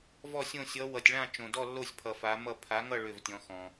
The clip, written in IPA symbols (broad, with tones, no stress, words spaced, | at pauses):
vɔ˥˧sʲõ˥˧ sʲʌ˧˥ wʌ˧tʲɭã˥˧ t͡ʃõ˧dɔ˥˧lːo˥˧sʲpʰʌ˧ fa˧˥mʌ˥˧ pʰa˧˥ŋʌ˥˧ ɭʏ˥˧vtʲɔ̃˧˥xɔ̃˧